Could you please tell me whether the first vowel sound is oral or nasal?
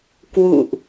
oral